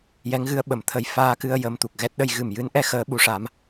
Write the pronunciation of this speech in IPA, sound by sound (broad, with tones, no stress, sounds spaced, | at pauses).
j ɛ˧˥ ŋ ɣ ɨ˧˥ ə̯ ɓ ə˨˩ m t̪ʰ ə˨˩ j f aː˧ k ɨ˧ ə̯ j ə˧ m t̪ u˨˩ k̚ ɣ ɛ˦˥ t̚ ɗ ə˧ j ɣ ɨ˨˩ m j ɨ˧˥ n ʔ ɛ˧˥ x əː˧˥ ɓ u˧˥ ʂ a˧˥ m